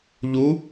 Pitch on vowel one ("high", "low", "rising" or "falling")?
rising